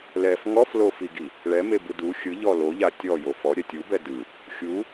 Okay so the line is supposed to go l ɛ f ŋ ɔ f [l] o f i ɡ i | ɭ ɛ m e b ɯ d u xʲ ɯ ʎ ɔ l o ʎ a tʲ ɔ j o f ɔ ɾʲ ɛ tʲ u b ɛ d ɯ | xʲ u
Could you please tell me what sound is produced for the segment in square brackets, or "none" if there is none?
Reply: l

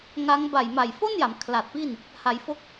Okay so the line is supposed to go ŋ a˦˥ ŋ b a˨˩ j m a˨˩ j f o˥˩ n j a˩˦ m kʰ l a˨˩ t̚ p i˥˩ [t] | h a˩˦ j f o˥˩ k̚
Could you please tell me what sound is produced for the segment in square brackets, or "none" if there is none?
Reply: n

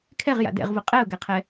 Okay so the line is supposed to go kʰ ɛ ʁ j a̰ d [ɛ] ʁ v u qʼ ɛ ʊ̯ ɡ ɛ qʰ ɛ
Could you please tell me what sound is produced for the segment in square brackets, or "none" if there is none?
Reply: ɛ̰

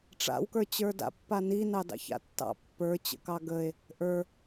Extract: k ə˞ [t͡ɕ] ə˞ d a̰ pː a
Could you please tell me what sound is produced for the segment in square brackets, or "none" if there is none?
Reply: t͡ɕ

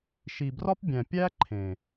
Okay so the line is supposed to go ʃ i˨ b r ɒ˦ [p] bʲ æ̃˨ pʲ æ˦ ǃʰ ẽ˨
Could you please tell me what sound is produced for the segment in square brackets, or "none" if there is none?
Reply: p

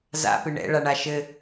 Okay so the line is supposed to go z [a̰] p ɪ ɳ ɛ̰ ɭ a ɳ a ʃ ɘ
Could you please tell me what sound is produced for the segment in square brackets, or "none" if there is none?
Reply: a̰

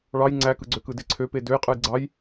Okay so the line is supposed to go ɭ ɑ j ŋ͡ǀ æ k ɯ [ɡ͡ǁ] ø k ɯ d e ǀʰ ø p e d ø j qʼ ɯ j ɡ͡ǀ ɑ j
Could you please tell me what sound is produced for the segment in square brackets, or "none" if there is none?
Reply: ɡ͡ǀ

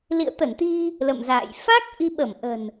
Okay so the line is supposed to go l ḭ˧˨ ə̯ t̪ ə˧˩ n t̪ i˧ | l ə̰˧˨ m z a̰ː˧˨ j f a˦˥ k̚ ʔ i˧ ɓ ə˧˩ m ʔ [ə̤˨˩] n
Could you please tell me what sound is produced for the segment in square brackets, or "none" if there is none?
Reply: ə̤˨˩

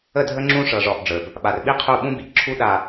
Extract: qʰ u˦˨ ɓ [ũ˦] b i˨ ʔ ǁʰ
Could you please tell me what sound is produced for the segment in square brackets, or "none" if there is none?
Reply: ũ˦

